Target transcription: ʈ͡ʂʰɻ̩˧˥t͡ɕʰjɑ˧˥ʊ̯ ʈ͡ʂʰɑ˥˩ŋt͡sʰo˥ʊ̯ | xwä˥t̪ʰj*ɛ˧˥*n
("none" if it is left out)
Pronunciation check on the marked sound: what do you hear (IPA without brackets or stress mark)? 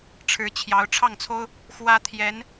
ɛ˧˥